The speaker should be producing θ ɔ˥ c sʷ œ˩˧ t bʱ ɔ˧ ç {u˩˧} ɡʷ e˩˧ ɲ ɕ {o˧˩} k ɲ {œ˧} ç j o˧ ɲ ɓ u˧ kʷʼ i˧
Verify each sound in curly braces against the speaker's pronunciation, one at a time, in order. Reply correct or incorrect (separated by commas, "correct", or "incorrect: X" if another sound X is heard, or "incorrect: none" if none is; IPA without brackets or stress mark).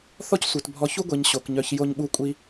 incorrect: u˥, incorrect: o˩˧, correct